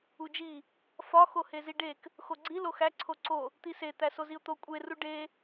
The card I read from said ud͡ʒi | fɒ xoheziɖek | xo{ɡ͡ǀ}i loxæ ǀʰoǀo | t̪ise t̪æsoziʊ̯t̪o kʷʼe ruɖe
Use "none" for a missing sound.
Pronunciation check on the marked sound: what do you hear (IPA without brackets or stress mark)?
ɡ͡ǀ